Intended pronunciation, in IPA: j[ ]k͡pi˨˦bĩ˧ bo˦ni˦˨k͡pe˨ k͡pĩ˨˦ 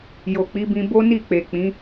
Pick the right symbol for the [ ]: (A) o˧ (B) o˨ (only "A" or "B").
B